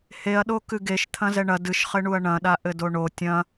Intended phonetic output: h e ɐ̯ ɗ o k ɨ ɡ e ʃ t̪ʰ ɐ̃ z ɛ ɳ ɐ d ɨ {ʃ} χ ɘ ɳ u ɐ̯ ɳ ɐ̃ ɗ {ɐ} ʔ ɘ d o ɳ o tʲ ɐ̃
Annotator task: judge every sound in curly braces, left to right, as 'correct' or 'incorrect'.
correct, incorrect

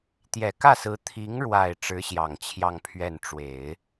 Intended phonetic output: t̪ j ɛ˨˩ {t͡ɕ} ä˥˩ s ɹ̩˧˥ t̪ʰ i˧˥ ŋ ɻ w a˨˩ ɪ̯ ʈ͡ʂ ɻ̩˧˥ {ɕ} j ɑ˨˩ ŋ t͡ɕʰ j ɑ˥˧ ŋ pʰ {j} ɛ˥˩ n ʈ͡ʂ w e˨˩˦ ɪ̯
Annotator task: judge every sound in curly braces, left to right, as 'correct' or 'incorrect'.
incorrect, correct, incorrect

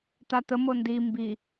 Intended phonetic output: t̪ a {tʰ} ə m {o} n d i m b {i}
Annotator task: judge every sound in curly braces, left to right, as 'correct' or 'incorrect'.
incorrect, correct, correct

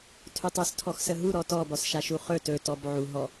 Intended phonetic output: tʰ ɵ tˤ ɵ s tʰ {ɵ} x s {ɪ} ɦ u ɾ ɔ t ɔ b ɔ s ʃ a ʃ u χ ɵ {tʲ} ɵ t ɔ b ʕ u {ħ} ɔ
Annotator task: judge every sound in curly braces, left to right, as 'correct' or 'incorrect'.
incorrect, incorrect, incorrect, incorrect

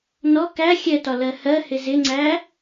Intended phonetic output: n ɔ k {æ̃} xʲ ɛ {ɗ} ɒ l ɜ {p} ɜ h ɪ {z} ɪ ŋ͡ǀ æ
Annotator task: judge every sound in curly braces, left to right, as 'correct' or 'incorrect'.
incorrect, incorrect, incorrect, correct

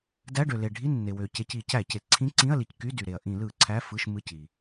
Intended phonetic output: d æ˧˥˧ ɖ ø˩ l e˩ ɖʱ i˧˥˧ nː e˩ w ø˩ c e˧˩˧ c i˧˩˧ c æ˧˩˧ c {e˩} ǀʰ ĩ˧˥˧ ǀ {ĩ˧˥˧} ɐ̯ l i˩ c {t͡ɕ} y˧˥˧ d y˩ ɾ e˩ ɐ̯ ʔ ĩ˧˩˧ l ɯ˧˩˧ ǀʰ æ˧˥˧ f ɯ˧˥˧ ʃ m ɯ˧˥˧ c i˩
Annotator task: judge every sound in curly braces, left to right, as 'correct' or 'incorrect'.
correct, correct, incorrect

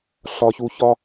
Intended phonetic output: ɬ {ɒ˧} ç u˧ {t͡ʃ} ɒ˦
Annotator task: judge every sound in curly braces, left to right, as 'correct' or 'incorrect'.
correct, incorrect

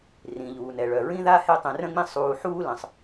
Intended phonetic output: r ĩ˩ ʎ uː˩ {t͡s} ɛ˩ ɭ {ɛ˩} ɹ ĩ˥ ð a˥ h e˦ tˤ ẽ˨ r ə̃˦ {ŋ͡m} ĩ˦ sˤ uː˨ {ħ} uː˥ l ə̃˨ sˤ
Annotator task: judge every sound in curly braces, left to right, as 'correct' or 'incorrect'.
incorrect, incorrect, correct, correct

